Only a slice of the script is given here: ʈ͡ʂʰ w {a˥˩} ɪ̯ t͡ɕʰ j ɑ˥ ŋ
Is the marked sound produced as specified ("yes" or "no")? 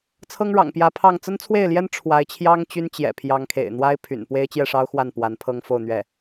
no